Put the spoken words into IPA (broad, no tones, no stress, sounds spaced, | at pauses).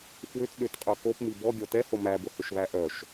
f w ʏ t ɗ ʏ t qʼ œ k o p m i b ɔ ɡʲ ɔ t ɛ h o m æ b ʊ h ʏ ʃ β æ ʔ œ ʃ